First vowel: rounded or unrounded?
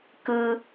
unrounded